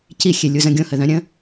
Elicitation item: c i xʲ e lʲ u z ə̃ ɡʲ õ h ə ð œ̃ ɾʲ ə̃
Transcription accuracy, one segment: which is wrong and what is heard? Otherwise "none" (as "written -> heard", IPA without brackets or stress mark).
none